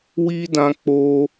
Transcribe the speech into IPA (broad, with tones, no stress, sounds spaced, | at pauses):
w i˧ d ã˧ k͡p o˧